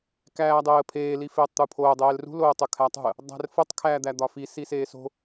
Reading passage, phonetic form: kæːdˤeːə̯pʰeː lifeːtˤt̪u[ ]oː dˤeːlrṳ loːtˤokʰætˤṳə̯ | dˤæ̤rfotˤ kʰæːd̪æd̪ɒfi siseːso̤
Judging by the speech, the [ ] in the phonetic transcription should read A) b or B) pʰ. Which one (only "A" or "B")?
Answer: B